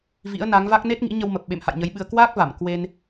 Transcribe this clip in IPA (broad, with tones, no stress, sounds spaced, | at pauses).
v ḭ˧˥ ə̯ n a˨˦ ŋ v a˦˥ k̚ n e˦˥ t̚ ŋ ḭ˧˥ ɲ ə˧ w m ə˨˩ p̚ ɓ ḛ˧˨ m h a̰˧˨ j ɲ ə˨˦ j ɓ ɨ˧ ə̯ k w aː˦˥ k̚ v a˧˩ m k w e˧ n